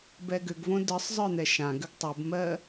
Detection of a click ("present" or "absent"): absent